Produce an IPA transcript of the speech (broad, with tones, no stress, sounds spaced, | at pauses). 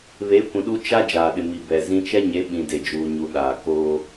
β e˨˦ kʷ ĩ˨ ɗ u˦ t͡ʃ a˦ d͡ʒ aː˨ ɗ ɪ˨ m i˨ b ɛ˨ z ĩ˦ t͡ʃ ɛ˦ ɲ e˨˦ ɓ ĩ˨ d e˨ d͡ʒ uː˨ ɲ u˨ ɗ aː˨ k oː˦